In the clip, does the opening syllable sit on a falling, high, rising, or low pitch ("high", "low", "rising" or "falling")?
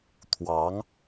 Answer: rising